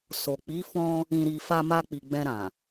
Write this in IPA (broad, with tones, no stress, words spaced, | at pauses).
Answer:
so˨k͡pi˨˦ fɔ̃˧ | ĩ˨ɾi˨ fa˧ma˧k͡pi˨ ɡ͡bɛ̃˧ɾã˨